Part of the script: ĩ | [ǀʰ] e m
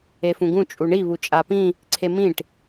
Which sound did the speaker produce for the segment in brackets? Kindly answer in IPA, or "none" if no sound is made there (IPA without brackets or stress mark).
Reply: ǀʰ